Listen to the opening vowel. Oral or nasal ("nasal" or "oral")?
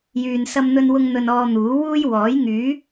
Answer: oral